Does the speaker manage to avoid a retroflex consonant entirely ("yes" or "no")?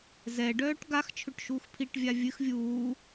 no